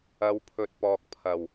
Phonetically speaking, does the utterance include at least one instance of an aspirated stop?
yes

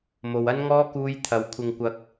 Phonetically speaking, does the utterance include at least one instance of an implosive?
no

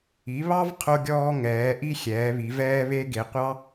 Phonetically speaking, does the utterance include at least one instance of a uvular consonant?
yes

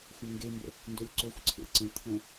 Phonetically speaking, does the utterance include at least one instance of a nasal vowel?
yes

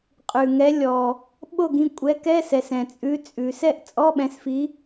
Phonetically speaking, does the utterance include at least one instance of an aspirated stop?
no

